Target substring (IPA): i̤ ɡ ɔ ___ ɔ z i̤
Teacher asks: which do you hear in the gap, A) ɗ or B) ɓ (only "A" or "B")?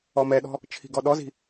A